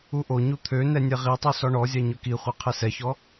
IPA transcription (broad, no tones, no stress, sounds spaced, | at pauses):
u ʔ o ɲ u t̪ʰ ø n ɛ nʲ ɛ ʁ i tˤ u s ɔ ɳ ɔ zʲ a ɲ ɵ k i χʷ ɛ qʰ ɛ s ɛ ç ɔ